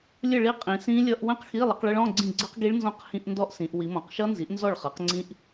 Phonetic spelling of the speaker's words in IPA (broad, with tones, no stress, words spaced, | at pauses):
lʲə˥˨ɭi˦˥qʼĩ˩˧ sĩ˦˥ lʲʌ˧˥˧ʔwə̃˥˨qxi˧˥˧ lˠə˩˥qɭə˦˥ɭɔ̃˧˥˧ ɡ͡ǀĩ˥˨ ɡ͡ǀə˦˥qɡi˦˥ɭnzɔ̃˦˥q hĩ˧˥˧ʔndɔ˦˥ʔsĩ˩˧ʔ wi˩˧mɔ̃˩˧qʃʌ˦˥nzi˩˥ʔ nzɔ˥˨ɭχʌ˩˥qŋ͡ǀĩ˦˥ʔ